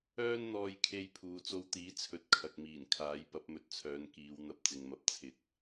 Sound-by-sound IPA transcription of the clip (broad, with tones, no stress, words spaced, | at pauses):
œː˧nn̪ɔː˨jkʰe˨j pʰuː˨t͡so˧wt̪iː˨˥ t͡sʰɵ˧t̚kʰɐ˨k̚miː˨˩n kʰaː˨˥jpɐ˨˥p̚mɵ˨˥t̚t͡sʰœː˨˧n kiː˨˧wn̪ɐ˧p̚ t͡sɪ˨ŋmɐ˨˥p̚ t͡sʰɪ˨˥k̚